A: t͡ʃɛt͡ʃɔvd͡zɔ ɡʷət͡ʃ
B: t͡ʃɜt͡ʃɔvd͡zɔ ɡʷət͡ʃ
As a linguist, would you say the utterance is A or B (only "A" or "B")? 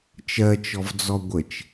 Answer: B